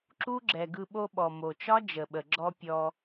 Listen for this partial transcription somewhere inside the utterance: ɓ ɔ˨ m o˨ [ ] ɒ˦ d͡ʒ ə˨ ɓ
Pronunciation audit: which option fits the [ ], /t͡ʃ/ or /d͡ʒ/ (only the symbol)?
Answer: t͡ʃ